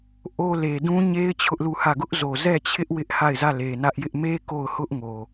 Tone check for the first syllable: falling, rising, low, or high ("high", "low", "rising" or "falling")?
high